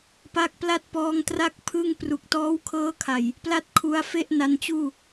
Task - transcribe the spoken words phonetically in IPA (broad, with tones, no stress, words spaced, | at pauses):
pa˦˥k̚pla˥˩t̚pɔː˧ŋtra˥˩k̚ pʰɯ˥˩ŋpru˨˩k̚ tɔː˦˥wkʰɤː˦˥kʰa˨˩j | pla˥˩t̚ kʰu˧a̯fe˥˩ʔ na˧nt͡ɕuː˥˩